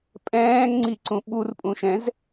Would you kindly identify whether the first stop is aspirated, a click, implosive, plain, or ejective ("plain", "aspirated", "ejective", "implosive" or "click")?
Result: ejective